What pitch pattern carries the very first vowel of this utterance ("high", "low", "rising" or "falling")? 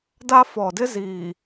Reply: high